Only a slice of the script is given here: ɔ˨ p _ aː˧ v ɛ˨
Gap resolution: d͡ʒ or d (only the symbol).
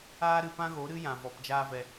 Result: d͡ʒ